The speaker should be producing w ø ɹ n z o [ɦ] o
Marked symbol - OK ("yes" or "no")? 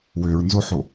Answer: no